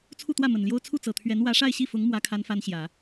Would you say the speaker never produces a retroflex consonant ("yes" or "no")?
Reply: no